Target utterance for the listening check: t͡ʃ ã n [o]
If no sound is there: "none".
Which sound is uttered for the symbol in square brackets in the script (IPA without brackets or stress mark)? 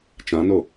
o